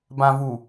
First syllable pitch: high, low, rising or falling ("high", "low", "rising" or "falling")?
low